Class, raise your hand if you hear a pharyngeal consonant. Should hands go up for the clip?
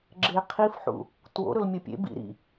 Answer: yes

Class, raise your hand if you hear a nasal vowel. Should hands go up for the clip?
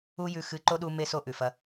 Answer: no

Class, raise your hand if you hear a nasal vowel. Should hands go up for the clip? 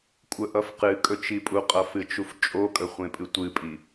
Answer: yes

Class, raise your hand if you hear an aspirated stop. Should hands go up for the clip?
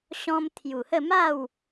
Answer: yes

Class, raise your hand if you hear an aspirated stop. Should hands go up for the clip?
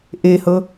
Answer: no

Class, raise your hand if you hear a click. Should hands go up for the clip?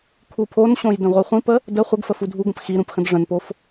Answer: no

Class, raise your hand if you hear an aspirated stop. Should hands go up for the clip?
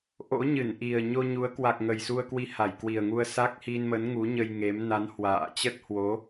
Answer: no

